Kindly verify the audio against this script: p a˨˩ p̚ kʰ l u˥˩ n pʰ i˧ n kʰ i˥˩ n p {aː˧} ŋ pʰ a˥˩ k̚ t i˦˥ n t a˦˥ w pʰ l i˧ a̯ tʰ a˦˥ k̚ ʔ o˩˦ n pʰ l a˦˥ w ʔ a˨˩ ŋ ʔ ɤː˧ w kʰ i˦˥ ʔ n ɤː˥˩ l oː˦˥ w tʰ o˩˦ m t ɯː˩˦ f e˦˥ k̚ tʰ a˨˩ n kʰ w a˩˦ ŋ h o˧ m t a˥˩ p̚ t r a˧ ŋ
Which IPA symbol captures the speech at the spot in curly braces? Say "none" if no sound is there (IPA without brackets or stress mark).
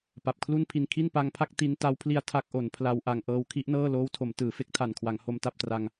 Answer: a˧